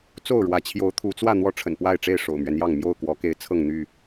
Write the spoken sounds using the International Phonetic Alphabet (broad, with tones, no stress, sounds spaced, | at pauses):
t͡s o˥˨ ʊ̯ ɻ w ä˨˦ t͡ɕʰ j o˨˦ ʊ̯ t̪ʰ u˨˦ t͡s w ä˥˨ n̪ w ɔ˥˨ ʈ͡ʂʰ ə̰˨˩ n p w a˥˨ ɪ̯ ʈ͡ʂ e˥˨ ɪ̯ ʂ o̰˨˩ ʊ̯ m ɥ ɛ˦ n j ɑ˥˨ ŋ m j o˥˨ ʊ̯ k w ɔ˨˦ k e˨˦ ɪ̯ t͡sʰ ɤ˥˨ ŋ n̪ y˥˨